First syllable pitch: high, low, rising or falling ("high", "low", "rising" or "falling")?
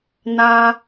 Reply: high